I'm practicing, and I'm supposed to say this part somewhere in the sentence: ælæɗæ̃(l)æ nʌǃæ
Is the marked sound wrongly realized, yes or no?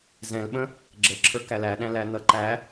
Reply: no